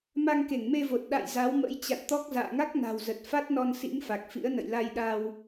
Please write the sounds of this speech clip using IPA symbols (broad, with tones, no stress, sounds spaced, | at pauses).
m a˧ ŋ k e˧˩ ŋ m e˧ v o˨˩ t̚ ɗ a̰˧˨ j z a˨˦ w m ə̰˧˥ j t͡ɕ a̰˧˨ n t̪ ɔ˦˥ k̚ z a̰ː˧˨ ŋ a˦˥ k̚ n a̤˨˩ w z ə˨˩ t̚ f a˦˥ t̚ n ɔ˧ n s ḭ˧˥ ŋ f a˨˩ k̚ f ḭ˧˥ ə̯ n ə̰˧˨ j l a˧ j ɗ a˧ w